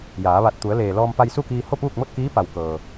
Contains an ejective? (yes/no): no